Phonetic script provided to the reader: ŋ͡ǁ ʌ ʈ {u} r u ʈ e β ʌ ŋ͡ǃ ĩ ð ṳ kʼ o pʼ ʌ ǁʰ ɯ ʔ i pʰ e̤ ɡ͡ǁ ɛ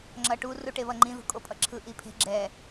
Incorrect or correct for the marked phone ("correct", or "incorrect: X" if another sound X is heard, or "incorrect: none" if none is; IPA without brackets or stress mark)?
correct